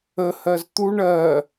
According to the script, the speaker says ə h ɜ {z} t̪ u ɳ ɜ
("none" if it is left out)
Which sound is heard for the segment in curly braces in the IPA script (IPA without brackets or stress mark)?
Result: z